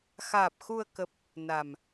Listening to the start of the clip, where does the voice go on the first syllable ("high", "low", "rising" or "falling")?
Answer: low